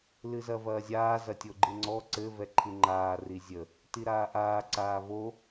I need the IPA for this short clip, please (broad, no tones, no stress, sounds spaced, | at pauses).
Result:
l ɨ z ɐ v ɐː zʲ aː z ɐ tʲ o ɡ͡ǃ ɨ ŋ͡ǀ ɔ ǀ ɘ v ɛ ǃʰ ɨ ŋ͡ǃ aː r i zʲ ə | t i ɾ aː ʔ aː ǀ aː v o